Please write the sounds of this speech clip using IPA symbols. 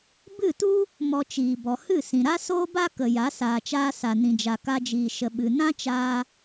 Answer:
bɨ˦˨tu˦ | mɔ˧t͡ʃiː˨bɔ˨ hɨ˦˨sĩ˨ɾa˦ soː˦ba˦kə˨ ja˨˦ saː˨t͡ʃaː˧ sa˨nĩ˨d͡ʒa˨ ka˧d͡ʒiː˨ʃə˨ ɓɨ˨ nã˦t͡ʃaː˧

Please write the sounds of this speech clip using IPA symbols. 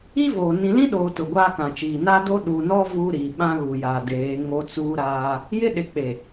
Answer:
i˦voː˨ nĩ˨lĩ˦ɗoː˨ tʊ˨ɡʷaː˦kã˨t͡ʃiː˨ na˦do˦ ɗu˨nɔ˦ vu˦ɾi˨ ɓã˦ɣu˨jaː˨deː˨˦ ŋo˦t͡suː˦ɾaː˦ | jɪ˦ ɗɪ˨ k͡pe˨

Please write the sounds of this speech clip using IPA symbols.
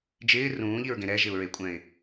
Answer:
d͡ʒɪː rũːʎiɹɡẽ ɾɛʒɪʊ̯ɹekʷʼɛ̃ɪ̯

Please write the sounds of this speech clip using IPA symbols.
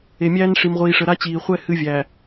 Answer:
e˨mʲæː˦n ʂi˨mʁʷiː˨ʂə˨ ɾa˦t͡ɕiː˨ χʷɛ˦ hɨ˦vʲæ˨

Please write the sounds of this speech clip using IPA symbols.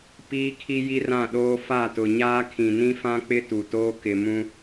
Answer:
piː˦kʰi˦ ji˦rã˦˨ɗoː˦ fa˦˨tʊ˨ɲaː˦ kʰĩ˨nĩ˦fã˦k͡pɪ˦ tu˨toː˦ kɪ˨mũ˦

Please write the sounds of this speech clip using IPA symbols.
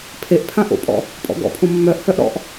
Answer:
pʰeʔ pʰãʔo̰pʼɔ̰ | pʼɔ̰ɡɔ̰pʰõ mːœʔhœʔ ɾɔ̰ʔ

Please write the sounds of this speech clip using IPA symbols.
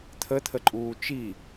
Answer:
t̪ʰət̪ʰəǃʼuː t͡ʃi

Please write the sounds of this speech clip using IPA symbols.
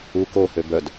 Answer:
u kohø bœd

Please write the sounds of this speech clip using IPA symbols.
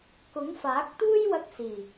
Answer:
kʊ˨˥ŋfaː˨˥k̚t̪uː˥j wɐ˧k̚siː˨˩

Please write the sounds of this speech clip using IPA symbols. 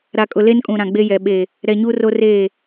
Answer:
ɾa˨kʼʊ˨le˦nkʼũ˨ ɾã˨ɡ͡be˦jɛ˨ ɓe˨ | ɾɛ˨ ɲuː˦roː˦reː˦˨

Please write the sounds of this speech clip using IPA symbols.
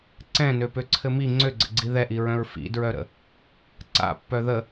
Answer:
ǀɛ̃nøpøǀʰɘ mi ŋ͡ǀøɡ͡ǀə̰ɡ͡ǀi ðɛʔiɹœ̃ɹ fḭdɹœɾə̰ | ǀa̰pːœ ðə

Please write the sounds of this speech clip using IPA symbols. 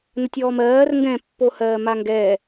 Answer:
nətʲɔːmɜːr ŋɡɛ̃ pːohɜːmaŋɡɛː

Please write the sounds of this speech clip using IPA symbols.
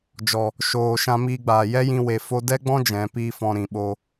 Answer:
d͡ʒɔ˨ | ʃoː˨ ʃã˧miː˧ɡ͡baː˨ jɛ˦jĩ˧we˨ fo˧dɛ˦ɡ͡bɔ̃˦ d͡ʒɛ̃˨˦piː˦fɔ̃˧ ɾĩ˨ɓo˧

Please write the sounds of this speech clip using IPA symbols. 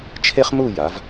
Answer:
t͡ʃʰe˥χmu˥˧ ja˩˧v

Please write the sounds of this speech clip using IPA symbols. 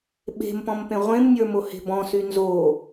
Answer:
ɓe̤m pɔ̃mpẽʁʷẽmnʲə˞ mohe̤bɔ̃sy nzo

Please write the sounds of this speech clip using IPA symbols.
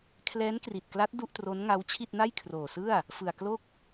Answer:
kʰlɛː˦˥nkri˨˩t̚kla˦˥t̚ du˥˩ʔtro˦˥nŋa˦˥wt͡ɕʰi˥˩t̚ na˥˩jkʰroː˨˩sɯ˥˩a̯ | fɯ˨˩a̯klo˥˩k̚

